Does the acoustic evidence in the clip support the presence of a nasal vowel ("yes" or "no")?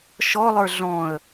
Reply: yes